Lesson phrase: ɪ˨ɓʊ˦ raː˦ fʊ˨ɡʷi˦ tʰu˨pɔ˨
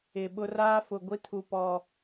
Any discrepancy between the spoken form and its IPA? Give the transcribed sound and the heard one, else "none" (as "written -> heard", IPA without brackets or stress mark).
none